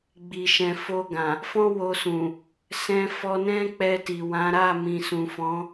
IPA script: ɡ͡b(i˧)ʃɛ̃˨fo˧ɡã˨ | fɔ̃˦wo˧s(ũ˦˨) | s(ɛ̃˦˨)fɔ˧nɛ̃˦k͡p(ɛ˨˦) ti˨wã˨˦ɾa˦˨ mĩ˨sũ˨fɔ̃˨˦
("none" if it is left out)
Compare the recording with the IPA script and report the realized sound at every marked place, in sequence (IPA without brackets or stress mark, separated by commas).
i˨, ũ˨, ɛ̃˧, ɛ˧